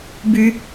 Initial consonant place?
labial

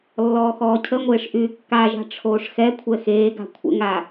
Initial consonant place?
alveolar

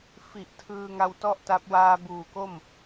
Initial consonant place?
labial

